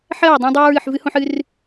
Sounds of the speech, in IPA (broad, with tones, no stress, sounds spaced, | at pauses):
ħ ɜ˦˨ ɹ dˤ æ̃˦ dˤ æː˦ ɹ ɨː˨ ħ v ɨ˦ h õ˦ ħ ɨ˦ r